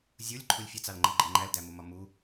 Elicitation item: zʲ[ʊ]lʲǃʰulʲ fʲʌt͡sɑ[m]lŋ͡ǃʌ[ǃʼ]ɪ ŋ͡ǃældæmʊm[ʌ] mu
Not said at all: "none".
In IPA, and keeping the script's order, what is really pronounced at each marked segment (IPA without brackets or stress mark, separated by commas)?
u, none, ɡ͡ǃ, ɒ